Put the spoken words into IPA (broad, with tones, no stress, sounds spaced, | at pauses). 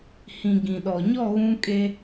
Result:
h ĩ˨ ɡ ĩ˨ ɗ ɔ˨ ɲ ɔ˦˨ ɣ ũ˦ kʼ e˦